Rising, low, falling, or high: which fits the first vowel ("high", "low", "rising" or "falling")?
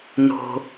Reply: low